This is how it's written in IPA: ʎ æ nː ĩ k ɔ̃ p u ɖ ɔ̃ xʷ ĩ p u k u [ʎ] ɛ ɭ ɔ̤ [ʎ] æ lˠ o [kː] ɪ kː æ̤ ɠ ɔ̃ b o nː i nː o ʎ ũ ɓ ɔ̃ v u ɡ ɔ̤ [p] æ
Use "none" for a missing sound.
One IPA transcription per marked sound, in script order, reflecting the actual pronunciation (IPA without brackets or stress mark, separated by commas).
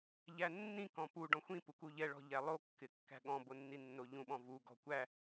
ʎ, ʎ, kː, kʷ